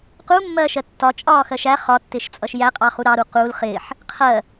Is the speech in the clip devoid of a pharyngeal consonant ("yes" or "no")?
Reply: no